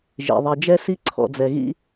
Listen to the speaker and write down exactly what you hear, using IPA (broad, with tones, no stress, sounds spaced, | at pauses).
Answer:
ʒ ḛ˩ ðˤ e˨ d͡ʒ ɛ˥ s i˥ ǀʰ ɔ̰˨ d͡z ɛ˨ ɣ ḭ˥